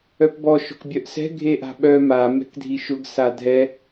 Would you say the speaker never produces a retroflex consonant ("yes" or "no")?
yes